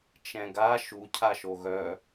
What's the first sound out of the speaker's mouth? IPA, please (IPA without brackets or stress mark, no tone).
t͡ʃ